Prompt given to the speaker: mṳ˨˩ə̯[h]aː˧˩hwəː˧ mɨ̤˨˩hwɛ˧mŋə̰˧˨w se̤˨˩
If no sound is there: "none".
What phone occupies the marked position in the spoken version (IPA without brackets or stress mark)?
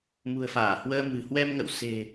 f